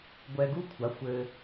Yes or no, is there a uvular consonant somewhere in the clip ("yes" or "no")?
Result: no